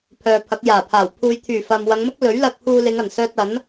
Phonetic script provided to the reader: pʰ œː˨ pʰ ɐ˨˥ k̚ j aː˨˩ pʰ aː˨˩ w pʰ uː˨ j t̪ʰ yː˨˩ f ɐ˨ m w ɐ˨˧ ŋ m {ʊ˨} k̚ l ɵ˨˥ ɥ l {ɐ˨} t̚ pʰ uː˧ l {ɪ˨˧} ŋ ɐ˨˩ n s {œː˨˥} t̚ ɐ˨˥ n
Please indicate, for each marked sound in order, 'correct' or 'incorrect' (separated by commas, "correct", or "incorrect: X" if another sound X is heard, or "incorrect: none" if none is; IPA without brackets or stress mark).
incorrect: ʊ˥, incorrect: ɐ˧, correct, incorrect: œː˧